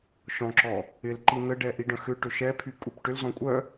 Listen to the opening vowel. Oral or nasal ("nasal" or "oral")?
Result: nasal